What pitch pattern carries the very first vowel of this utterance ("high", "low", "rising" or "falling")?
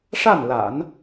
falling